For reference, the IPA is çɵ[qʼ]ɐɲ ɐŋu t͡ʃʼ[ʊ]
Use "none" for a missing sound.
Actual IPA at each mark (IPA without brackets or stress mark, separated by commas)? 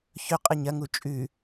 qʼ, ʉ